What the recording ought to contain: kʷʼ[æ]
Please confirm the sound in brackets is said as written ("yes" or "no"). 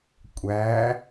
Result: yes